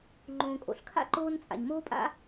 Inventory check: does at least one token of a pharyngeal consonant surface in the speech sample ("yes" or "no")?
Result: no